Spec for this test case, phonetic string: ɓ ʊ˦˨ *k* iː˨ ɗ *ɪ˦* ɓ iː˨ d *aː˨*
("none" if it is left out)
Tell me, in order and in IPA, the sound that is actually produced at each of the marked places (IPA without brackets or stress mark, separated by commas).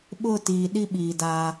t, i˦, aː˦